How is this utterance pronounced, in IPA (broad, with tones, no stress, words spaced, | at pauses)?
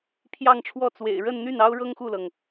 pʰjɑ˥˧ŋʈ͡ʂʰwɔ˥˩t͡swḛ˨˩ɪ̯ ɻə˥˧nn̪y˥˩n ɑ˥ʊ̯ɻɤ˥ŋ xu˥˩lɤ˩ŋ